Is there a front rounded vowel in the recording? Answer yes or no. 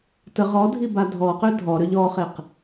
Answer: yes